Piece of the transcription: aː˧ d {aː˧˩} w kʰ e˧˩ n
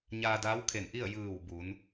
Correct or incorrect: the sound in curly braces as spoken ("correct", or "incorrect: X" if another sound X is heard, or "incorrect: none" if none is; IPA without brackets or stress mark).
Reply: incorrect: aː˧˥